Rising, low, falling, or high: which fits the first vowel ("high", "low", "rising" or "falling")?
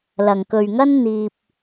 low